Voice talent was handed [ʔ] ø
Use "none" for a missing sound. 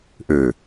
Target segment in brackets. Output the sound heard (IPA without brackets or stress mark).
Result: ʔ